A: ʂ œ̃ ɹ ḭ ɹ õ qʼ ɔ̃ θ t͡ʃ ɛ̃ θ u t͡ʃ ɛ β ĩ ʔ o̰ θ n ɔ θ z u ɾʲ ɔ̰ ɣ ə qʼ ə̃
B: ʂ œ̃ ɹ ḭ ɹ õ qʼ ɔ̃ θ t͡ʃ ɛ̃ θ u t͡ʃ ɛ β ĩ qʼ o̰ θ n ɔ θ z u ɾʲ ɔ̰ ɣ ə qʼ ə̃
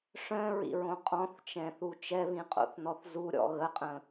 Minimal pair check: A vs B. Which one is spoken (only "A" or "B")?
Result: B